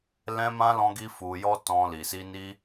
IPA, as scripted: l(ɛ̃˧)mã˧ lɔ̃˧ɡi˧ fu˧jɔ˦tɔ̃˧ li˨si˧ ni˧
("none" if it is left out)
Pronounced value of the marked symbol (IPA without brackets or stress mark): ɛ̃˧